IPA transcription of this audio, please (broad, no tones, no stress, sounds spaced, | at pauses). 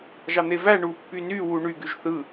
ʒ ɑ n̪ e v æ ɳ u pː y n y w u ɳ y ɡ y ʒ θ ɯ